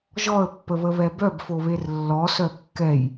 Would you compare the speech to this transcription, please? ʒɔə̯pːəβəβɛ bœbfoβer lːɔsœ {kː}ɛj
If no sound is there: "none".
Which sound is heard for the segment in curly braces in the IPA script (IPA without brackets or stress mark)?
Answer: kː